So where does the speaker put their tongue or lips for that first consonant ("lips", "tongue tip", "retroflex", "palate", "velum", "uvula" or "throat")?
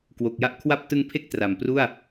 velum